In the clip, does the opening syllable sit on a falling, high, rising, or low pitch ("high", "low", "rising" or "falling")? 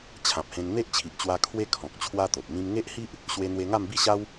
low